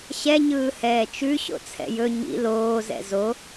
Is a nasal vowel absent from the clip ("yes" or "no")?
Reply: yes